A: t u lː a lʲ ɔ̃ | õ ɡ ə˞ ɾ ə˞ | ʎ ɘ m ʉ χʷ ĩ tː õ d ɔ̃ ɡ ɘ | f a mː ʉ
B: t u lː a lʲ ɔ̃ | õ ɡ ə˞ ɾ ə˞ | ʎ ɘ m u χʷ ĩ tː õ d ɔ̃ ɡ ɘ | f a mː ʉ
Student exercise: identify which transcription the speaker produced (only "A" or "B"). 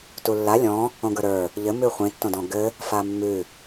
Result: A